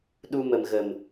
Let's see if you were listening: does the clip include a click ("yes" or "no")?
no